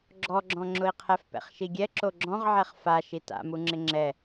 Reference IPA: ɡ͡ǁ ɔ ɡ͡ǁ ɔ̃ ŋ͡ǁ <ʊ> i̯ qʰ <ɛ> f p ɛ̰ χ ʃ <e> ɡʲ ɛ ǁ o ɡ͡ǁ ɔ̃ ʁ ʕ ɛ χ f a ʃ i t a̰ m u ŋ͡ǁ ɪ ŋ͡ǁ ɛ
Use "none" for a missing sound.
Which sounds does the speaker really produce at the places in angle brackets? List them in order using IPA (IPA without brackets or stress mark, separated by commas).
ʊ, ɛ, i